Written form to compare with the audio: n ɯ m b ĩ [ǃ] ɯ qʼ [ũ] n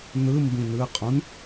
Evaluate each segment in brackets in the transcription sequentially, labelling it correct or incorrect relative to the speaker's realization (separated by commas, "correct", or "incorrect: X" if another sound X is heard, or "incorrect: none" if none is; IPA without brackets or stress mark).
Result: incorrect: n, correct